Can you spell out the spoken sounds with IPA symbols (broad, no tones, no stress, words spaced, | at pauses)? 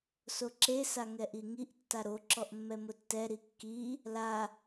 soǁe saŋɛʔiŋiʔ tːaɾo ǁɔʔmːɛmʊtːɛ ɾikːi | la